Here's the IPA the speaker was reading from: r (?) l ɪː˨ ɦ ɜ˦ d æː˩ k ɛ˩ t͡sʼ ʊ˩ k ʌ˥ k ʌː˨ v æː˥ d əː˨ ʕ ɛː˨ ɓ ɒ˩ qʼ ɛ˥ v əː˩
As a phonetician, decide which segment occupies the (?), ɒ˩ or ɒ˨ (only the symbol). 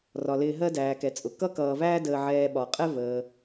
ɒ˩